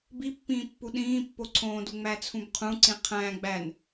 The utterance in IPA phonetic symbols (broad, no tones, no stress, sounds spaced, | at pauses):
b i pː ĩː pː u ɗ ĩː pː o ǀʰ õː d u ŋ͡m æ t͡sʰ ũ b qʰ ũ ǀ ĩ qʰ æ̃ ɡ͡b æ n